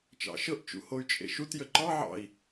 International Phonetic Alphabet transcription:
t͡ʃ ɑ̰ ʃ ɤ ʔ t͡ʃ ṵ h o y̯ t͡ʃʼ ḛ ʃ u t j ə ǃ ɑ ʕ ɑ̰ i̯

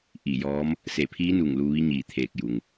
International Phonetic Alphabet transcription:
ʔ i˧˩ j ɔː˧˥ m | s e˧˩ pʰ iː˧˥ n u˧˩ ŋ l u˧ ʋ i˧˥ ɲ iː˧˩ t̪ʰ eː˧˩ k̚ j u˩ ŋ

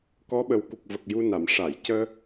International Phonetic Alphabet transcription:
k ɔ˧˥ ɓ ə˨˩ w k u˨˩ k̚ v ə˨˩ k̚ j u˧ n a˨˩˨ m ʂ a˨˩˨ j c əː˧

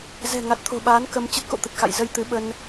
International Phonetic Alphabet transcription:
z ɛ̤˨˩ ŋ a˨˩ t̚ t̪ʰ o̤˨˩ ɓ aː˨˦ n k ə˧ m t͡ɕ ə˦˥ t̚ k o̰˧˨ t̪ ə˨˩ t̚ x a̰˧˨ j z ə˧ j t̪ ɨ˨˦ ɓ ə˧ n

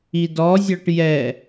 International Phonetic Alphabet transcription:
i d ɔ zʲ ɔ ʈ j ɛ

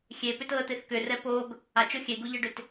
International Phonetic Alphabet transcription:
xʲ e p ʏ t ɤ ə̯ t̪ e θ k ʏ r ɛ p o ɡ | a t͡ʃ o xʲ e ɡ u ʎ ɤ ɖ ʏ t

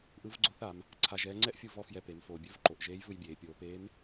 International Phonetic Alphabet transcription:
ʔ ɯ˧˥ v ɡ͡ǀ o˧˥ θ a˩˧ m | ǀʰ a˧ ʒ ɛː˧˥ ŋ͡ǀ ɛ˥ ʔ fʲ u˧ v ɔ˧ f j ɛ˧ p e˩˧ m f oː˩ bʲ ɵ˧˥ v ǃ o˩˧ ʔ ʒ eː˧˥ j v ɯ˧ j bʲ eː˩˧ pʲ oː˩˧ p eː˧˥ m

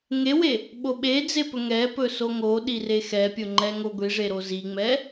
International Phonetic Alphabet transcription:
ŋ e w e | ɓ o ɓ e d͡z e p ɵ ŋ ɛ p ɵ s o ŋ o ɗ i r e x ɛ pʲ o ŋ͡ǃ ɛ ŋ o ɡʷ i ʐ e ɾ o z i ŋ͡m ɛ

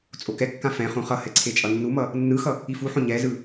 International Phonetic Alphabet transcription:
t͡sʼ o k ɛ kː ã f ɛ̃ χ ũ χ ʌ h ɛ ǀʰ e t͡ʃʼ ʌ nː u m ʌ | nː ɯ x ʌ | i f u ħ õ ɲ ɛ z ɯ

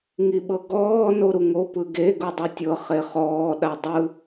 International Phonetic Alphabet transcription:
ŋ i ɓ ɤ ɡ ɔː n o ɾ u ŋ o p ɯ ɡ e ɡ u dˤ u tʲ ɤ χ e χ ɔː ɗ a dˤ ɯ

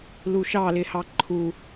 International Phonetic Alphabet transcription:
l u ʃ ɑ l ɪ h ɑ ǃʰ u

